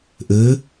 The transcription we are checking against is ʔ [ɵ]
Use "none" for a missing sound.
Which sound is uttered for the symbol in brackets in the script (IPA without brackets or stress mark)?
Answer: ɵː